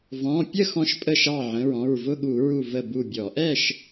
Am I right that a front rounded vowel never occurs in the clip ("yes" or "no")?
yes